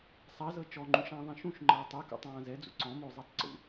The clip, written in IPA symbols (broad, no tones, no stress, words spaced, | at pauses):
sˤazɤ t͡ʃɔŋ͡ǃũʃãːðˤɛ̃ ʃũʃŋ͡ǃɤː tˤɛkṵtˤãː zɛd͡zṵ ǀɔ̃mozˤitˤ ǀṵ